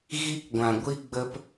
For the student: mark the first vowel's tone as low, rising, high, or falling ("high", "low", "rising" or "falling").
high